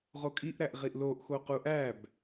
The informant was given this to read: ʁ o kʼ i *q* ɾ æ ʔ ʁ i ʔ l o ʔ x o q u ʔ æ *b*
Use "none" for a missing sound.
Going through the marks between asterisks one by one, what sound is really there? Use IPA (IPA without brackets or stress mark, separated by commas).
ʔ, b